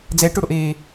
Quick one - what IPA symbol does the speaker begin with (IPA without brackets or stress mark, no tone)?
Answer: d͡z